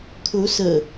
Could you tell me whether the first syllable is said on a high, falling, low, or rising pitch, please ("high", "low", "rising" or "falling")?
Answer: rising